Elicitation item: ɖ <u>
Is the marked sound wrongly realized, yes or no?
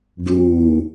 no